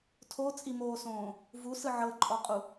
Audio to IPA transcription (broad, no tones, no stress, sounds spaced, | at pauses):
tʰ o t͡sʼ i m oː s õː | v u s ɯ ʕ ɤ ǃʼ ɔ qʼ u